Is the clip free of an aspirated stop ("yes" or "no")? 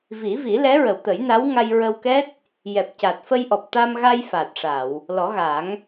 yes